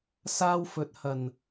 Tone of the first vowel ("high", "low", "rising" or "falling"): high